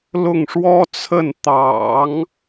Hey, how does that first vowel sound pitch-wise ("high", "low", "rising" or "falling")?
falling